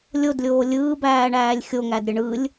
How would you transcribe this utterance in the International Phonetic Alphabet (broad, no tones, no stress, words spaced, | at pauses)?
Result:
lʲodlʲoː lʲɯːbæːɳæːlʲ xʲoŋæd ɾʲəɳɯlʲ